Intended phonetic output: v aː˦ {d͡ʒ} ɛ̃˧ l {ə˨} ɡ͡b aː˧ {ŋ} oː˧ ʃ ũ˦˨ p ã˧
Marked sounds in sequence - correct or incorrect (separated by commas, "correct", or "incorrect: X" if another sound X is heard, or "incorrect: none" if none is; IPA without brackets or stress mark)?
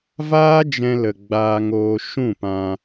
correct, correct, correct